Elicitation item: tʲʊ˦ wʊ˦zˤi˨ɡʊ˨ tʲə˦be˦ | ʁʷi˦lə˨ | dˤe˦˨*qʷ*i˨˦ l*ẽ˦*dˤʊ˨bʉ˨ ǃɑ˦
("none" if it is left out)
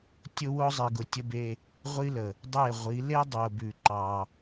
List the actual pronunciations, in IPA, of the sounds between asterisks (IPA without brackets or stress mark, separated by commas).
ʁʷ, e˦